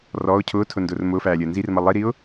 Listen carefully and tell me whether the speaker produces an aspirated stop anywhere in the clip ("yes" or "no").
yes